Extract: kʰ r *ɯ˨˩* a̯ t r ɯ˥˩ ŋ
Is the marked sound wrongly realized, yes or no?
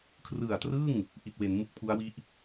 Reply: no